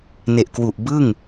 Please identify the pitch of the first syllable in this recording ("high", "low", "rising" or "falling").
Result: low